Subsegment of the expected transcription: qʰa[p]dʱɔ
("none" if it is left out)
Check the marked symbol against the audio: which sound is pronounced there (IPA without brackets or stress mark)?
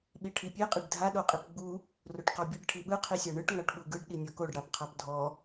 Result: p